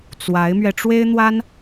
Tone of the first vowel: rising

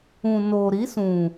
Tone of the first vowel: low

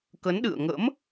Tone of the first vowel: rising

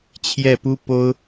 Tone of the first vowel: falling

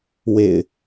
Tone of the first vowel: low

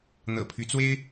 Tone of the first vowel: low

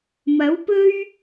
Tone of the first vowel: rising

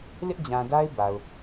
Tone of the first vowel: high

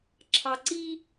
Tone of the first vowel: low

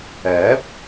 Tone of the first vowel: rising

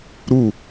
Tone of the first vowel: falling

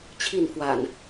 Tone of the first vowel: falling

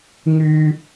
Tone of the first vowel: high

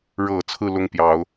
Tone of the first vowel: low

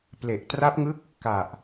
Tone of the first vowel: low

